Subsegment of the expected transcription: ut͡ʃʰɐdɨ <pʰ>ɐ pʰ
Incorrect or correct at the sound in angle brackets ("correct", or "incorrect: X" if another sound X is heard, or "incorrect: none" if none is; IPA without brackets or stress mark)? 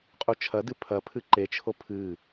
correct